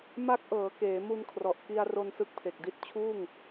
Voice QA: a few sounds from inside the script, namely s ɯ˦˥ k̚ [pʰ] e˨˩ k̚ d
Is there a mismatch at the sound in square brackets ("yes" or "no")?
no